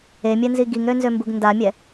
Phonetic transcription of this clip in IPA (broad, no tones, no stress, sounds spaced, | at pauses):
e mʲ ɛ n z i ɡ i ŋ ɾ ø n z ø m b u ɡ n d a mʲ ɛ